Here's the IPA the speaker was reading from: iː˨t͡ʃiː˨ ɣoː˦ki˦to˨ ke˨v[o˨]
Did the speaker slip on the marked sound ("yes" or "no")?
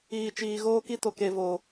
no